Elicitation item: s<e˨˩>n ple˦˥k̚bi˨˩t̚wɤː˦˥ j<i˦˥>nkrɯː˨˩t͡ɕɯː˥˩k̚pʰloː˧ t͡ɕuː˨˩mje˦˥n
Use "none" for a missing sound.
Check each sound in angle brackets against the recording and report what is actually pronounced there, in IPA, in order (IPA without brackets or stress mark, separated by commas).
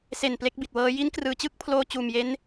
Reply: e˨˩, i˦˥